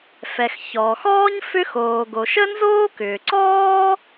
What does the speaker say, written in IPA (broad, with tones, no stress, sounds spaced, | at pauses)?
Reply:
f ɛ˩ x ç ɔː˩ x ɔː˥ ɲ f ʏ˥ x oː˩ ɡ o˩ ʃ ə˥ n z oː˥ k ʏː˩ ǀ ɔː˥